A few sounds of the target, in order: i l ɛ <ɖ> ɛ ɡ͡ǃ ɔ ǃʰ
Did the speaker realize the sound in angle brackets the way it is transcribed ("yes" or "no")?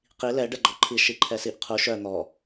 yes